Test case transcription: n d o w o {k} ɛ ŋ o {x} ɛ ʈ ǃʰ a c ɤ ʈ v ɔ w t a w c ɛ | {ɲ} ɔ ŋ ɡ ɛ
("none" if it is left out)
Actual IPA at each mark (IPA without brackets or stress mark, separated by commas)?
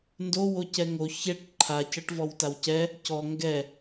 c, ç, c